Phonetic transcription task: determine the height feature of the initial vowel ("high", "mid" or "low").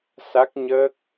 low